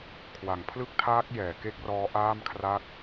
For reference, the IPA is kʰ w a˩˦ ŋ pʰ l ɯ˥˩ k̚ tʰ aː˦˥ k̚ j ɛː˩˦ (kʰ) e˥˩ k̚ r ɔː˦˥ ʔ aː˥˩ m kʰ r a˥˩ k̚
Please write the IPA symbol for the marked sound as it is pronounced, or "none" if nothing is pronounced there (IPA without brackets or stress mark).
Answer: k